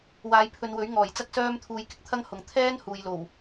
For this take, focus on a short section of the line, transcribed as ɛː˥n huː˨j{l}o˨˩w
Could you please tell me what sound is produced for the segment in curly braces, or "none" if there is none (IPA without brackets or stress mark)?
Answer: l